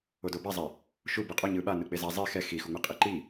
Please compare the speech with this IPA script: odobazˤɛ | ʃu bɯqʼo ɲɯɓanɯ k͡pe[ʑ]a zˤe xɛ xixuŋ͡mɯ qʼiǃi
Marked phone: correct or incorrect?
incorrect